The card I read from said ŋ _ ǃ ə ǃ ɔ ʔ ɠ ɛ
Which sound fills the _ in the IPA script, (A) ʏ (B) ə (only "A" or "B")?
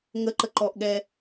B